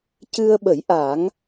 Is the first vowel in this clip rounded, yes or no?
no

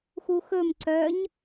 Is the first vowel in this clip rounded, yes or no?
yes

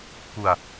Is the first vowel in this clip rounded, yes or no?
yes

